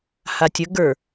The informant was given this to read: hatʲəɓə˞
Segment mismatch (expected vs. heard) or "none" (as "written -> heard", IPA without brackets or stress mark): ɓ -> ɡ